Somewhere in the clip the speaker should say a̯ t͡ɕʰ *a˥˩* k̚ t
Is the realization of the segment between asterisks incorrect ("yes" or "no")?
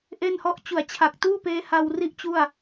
yes